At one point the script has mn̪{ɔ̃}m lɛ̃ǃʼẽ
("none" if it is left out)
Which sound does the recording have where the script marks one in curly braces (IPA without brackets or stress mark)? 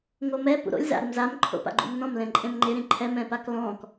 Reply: ɔ̃